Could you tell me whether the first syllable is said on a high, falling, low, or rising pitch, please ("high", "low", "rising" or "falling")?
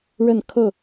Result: falling